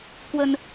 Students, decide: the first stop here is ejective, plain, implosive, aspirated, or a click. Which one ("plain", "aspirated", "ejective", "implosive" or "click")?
plain